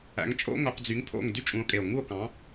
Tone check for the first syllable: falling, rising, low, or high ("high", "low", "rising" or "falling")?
rising